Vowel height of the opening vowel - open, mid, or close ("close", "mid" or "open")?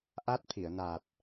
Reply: open